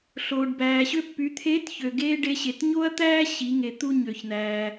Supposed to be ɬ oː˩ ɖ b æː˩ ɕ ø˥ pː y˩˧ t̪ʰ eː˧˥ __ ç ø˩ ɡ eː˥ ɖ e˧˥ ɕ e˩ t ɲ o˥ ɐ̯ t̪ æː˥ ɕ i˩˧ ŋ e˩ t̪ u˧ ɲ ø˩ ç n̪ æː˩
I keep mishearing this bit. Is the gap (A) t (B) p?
A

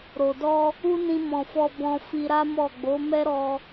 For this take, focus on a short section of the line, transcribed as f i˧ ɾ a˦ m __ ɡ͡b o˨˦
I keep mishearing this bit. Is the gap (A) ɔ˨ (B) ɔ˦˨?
B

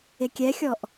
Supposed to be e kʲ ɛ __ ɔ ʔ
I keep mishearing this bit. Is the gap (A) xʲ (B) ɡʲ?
A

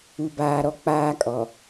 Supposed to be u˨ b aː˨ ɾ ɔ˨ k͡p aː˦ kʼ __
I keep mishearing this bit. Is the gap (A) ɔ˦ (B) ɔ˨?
B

